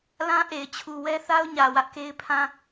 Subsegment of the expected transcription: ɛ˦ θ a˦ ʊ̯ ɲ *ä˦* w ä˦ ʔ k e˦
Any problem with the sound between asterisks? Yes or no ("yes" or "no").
yes